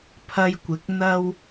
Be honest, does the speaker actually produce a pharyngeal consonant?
no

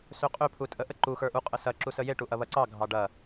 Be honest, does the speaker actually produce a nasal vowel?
no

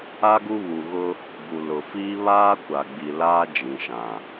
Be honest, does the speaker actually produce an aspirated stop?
no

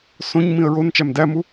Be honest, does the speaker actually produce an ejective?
no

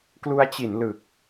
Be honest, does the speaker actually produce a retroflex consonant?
no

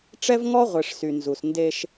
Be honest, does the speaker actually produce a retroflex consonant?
yes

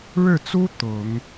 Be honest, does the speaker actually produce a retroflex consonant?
yes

